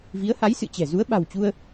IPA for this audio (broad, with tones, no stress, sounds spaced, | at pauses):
v i˨˦ ə̯ h a˨˦ j s ɨ̰˧˨ t͡ɕ ɛ̤˨˩ z u˨˦ ə̯ ɓ a̤˨˩ w t͡ɕ u˧ ə̯